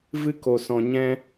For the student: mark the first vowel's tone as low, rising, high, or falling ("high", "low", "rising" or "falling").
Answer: high